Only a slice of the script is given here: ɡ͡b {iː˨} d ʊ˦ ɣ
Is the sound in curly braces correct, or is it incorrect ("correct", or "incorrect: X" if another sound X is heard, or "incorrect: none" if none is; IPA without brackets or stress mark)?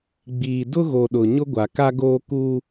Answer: correct